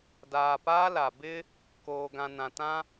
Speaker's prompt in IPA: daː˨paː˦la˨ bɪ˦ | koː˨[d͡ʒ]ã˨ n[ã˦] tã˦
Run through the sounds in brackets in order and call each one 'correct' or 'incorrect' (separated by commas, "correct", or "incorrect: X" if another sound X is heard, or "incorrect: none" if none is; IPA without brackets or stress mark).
incorrect: ɡ, incorrect: ã˨